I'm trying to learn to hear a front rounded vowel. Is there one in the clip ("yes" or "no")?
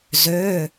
yes